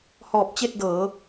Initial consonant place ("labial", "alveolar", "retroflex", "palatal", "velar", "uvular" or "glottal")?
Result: glottal